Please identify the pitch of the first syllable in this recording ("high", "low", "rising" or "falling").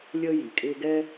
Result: high